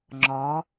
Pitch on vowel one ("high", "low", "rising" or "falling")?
rising